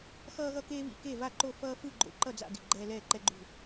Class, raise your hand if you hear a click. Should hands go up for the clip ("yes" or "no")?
yes